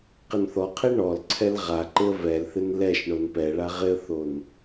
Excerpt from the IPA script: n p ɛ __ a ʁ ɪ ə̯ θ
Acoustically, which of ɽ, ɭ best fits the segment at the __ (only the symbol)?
ɭ